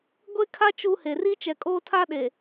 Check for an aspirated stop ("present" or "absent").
present